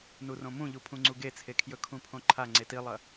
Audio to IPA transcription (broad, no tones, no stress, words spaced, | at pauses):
nurõmũʎu pʰũŋ͡ǀuɡet͡sʰe kʰjɵkʰũpʰõǃʰa ŋ͡ǀetilˠɐ